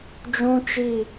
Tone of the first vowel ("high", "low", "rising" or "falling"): high